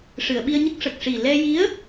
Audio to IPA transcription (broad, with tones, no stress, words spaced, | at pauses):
ʂɨ˨˩˨ə̯ɓi˧ə̯ɲə˦˥k̚ ʂə˨˩k̚ʂi˨˩ lɛ˧ji˧˥ə̯